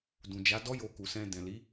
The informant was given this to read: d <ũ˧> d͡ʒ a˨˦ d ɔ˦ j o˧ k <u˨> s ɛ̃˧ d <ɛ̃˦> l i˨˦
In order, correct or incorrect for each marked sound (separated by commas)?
incorrect, correct, incorrect